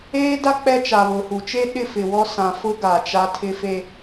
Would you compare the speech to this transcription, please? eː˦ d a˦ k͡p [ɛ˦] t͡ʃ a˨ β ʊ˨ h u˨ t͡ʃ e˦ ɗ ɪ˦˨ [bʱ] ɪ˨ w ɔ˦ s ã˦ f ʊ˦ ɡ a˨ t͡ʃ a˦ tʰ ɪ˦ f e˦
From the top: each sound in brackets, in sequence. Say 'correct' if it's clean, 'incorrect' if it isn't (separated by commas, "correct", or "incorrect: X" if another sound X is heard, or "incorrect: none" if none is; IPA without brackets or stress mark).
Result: correct, incorrect: f